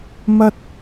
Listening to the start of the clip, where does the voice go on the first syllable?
high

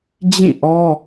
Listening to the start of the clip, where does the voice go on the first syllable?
falling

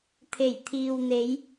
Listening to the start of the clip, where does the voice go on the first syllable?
low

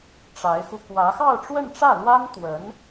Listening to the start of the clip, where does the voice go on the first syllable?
rising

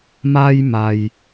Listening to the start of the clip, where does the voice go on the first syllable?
high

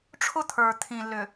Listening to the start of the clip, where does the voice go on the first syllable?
high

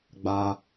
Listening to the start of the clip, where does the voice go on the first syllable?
high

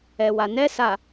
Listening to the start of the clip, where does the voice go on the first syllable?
low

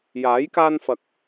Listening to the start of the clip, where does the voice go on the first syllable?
rising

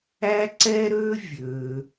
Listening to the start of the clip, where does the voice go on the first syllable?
high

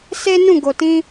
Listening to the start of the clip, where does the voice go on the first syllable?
high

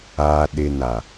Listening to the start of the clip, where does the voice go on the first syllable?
low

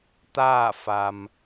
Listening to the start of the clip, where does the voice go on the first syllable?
falling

